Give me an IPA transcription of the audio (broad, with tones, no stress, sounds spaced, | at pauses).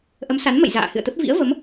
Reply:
ʔ ə˨˦ m s a˨˦ n m ə̰˧˨ j z a̰ː˧˨ h ɨ̰˧˨ ə̯ t̪ ə˦˥ p̚ v ḭ˧˥ ə̯ v ə˨˦ m